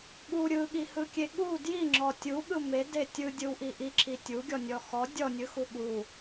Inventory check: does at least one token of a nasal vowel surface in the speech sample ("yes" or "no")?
no